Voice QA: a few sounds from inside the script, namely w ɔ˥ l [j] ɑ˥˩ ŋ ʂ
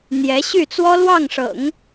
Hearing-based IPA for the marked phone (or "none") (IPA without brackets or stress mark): w